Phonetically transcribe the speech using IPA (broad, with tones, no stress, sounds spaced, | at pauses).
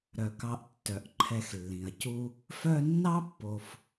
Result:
ɾ œ˩ k ɑ˨ ʔ tː œ˩ ʔ ǃʰ ɛ˨ x lː ĩ˩ ɐ̯ c u˥ | f œ˦ nː ɑ˥ pː o˨ f